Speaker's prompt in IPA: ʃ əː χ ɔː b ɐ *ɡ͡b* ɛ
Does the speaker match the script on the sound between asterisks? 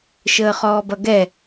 no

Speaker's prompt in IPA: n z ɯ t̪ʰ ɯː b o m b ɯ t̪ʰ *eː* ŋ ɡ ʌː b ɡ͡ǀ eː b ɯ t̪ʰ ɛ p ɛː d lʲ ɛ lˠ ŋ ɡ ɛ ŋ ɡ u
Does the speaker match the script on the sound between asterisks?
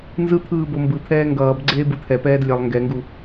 no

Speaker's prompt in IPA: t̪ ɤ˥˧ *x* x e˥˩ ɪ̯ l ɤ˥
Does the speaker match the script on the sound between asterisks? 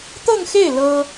no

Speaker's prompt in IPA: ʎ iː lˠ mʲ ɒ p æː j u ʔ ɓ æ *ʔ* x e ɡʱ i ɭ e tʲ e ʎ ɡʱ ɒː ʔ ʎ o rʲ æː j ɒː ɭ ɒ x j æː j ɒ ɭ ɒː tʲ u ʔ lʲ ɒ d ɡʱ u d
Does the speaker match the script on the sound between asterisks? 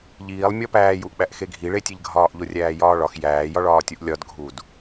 yes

